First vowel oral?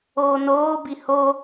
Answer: yes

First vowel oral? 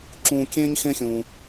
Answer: no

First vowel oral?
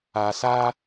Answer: yes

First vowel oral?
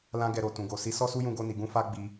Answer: no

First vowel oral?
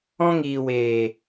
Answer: no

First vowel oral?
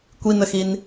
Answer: yes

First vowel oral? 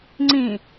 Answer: no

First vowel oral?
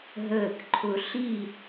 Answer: yes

